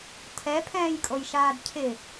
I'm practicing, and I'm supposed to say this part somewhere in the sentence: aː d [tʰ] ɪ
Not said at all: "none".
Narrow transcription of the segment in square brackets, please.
cʰ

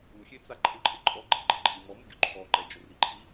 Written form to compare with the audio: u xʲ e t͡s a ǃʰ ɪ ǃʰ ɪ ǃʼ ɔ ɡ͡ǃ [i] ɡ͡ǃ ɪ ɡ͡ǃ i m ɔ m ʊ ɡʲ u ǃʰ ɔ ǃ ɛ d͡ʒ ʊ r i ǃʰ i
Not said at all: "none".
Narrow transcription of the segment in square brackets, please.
i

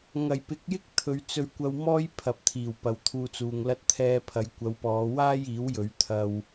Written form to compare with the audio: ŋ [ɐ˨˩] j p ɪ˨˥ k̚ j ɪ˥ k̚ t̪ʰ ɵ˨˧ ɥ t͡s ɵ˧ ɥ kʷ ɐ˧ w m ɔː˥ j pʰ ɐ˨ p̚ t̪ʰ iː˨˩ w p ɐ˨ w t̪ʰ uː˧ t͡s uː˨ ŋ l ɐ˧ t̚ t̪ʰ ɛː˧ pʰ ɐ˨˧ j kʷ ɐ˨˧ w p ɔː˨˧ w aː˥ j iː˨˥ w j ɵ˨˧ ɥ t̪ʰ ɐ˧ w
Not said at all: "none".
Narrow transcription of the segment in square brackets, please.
ɐ˨˩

